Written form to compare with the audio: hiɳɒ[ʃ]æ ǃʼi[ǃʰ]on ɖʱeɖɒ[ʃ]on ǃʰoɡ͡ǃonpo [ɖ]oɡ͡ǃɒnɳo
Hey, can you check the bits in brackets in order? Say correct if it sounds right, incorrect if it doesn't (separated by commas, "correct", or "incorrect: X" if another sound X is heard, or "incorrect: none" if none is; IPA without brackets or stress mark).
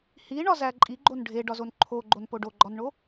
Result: incorrect: z, incorrect: ɡ͡ǃ, incorrect: z, correct